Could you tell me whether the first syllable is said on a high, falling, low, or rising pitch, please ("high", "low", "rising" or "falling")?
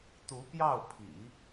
rising